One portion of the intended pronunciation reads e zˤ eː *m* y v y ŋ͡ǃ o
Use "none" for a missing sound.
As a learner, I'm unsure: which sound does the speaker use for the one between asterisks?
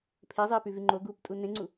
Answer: p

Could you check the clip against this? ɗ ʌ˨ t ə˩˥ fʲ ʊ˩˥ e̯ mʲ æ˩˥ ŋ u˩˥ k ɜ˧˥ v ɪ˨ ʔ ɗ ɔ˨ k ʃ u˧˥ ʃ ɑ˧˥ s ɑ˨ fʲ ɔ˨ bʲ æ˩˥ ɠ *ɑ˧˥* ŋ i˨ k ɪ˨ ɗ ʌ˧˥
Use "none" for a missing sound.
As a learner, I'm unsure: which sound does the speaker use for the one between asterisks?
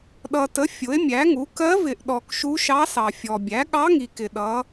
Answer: ɑ˧˥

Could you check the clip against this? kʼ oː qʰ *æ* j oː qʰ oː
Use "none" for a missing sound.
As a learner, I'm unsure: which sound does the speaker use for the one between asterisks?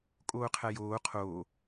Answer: æ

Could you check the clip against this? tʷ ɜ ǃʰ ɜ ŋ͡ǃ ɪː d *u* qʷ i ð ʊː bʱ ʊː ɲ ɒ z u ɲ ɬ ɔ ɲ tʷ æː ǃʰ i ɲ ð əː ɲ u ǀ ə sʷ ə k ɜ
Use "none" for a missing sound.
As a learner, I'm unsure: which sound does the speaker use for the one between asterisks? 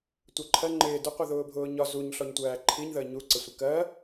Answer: ʊ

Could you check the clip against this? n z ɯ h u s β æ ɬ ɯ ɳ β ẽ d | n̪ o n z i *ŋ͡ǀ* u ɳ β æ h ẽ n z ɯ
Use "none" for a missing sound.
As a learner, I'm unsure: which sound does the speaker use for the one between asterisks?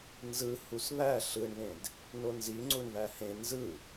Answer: ŋ͡ǀ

